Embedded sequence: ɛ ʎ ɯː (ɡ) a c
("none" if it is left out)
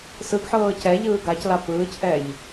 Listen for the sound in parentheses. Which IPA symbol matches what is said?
ɡ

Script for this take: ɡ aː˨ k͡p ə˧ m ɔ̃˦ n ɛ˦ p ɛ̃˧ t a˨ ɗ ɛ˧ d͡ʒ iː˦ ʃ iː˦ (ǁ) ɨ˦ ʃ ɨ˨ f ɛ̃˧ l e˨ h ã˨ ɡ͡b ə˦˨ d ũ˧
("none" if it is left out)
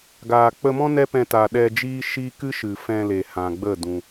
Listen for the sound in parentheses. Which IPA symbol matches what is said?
k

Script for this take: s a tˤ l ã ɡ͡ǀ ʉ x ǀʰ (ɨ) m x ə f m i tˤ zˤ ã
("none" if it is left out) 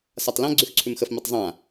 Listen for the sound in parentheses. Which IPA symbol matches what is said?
ʉ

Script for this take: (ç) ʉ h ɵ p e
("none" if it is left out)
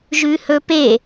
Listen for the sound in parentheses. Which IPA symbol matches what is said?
ʒ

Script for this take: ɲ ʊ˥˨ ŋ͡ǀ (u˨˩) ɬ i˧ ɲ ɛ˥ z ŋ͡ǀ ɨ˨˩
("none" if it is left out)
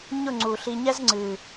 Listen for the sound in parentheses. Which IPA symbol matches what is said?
u˨˩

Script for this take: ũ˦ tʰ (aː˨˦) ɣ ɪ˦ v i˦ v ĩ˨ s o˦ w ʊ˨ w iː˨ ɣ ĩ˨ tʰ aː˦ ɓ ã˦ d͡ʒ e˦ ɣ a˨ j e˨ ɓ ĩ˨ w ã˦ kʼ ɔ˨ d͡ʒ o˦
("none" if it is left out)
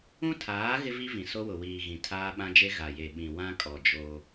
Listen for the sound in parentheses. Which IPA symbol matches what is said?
aː˨˦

